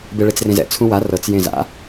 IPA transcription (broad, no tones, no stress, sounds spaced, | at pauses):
b e ɭ e t͡s r ẽ z ɛ̰ t͡sʰ ũ w a r ɤ t͡s j ẽ z a̰